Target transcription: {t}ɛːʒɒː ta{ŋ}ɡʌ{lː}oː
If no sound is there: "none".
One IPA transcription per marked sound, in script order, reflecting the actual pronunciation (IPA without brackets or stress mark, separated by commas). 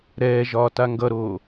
ɾ, ŋ, ɾ